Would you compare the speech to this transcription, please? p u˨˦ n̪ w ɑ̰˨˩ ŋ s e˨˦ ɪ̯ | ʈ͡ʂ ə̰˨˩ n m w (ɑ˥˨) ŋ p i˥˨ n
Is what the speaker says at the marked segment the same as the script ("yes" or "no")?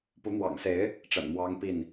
no